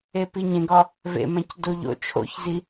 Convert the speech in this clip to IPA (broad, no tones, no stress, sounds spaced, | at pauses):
e p i ɲ ẽ ɡ ɒ | v ḛ m æ̃ c d o ʎ o̰ t͡ʃʰ o̰ ç z i